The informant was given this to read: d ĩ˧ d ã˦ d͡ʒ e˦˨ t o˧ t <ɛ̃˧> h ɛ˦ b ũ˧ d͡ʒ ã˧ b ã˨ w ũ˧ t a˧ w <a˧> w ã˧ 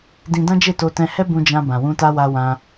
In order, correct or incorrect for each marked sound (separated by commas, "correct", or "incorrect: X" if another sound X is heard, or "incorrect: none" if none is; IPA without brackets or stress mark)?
correct, correct